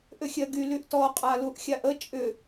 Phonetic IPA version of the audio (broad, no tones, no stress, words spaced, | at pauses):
ʔʏxʲɜɡy lyʔtɔ qʼaluʔxʲaʔə t͡ʃʼʏ